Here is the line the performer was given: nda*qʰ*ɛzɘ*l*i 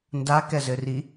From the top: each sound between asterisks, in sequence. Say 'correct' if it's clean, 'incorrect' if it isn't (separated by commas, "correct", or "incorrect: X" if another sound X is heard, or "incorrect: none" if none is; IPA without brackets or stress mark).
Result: incorrect: k, incorrect: r